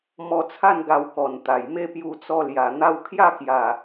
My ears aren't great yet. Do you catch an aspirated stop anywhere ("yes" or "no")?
yes